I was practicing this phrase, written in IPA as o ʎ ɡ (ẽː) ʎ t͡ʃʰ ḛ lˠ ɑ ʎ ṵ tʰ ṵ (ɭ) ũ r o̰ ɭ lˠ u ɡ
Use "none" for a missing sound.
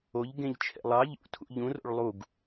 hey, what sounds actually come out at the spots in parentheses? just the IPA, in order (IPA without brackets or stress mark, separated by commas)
ẽ, ʎ